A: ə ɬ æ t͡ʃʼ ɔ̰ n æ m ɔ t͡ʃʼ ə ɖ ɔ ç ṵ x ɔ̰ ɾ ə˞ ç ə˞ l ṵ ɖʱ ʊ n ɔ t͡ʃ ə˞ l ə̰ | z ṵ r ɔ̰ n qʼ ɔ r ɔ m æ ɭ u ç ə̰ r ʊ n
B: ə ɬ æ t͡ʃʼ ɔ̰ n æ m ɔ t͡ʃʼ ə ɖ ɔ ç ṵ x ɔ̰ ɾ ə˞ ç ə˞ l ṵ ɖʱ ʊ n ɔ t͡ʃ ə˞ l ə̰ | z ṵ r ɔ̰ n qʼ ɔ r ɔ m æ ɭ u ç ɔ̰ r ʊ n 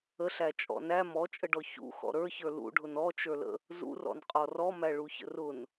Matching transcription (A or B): A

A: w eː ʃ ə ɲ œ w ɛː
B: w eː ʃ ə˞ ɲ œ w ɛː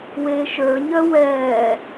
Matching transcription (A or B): B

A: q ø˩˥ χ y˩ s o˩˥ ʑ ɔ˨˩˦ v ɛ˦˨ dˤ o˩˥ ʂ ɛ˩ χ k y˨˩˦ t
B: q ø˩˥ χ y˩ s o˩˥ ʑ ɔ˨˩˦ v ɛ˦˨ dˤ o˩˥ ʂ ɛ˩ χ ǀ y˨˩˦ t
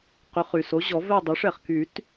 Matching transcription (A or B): A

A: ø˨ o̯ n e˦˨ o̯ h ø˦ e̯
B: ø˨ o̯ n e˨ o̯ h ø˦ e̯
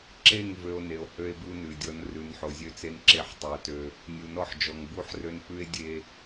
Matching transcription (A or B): B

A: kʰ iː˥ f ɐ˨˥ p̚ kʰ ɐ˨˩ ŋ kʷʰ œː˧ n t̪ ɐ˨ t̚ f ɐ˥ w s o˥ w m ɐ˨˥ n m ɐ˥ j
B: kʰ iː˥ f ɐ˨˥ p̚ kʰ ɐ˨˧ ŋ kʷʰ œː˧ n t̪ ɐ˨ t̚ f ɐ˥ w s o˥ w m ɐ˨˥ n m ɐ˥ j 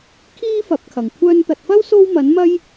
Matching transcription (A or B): A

